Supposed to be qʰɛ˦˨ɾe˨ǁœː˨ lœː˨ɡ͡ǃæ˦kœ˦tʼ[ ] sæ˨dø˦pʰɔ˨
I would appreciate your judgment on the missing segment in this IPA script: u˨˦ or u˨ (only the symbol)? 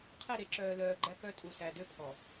u˨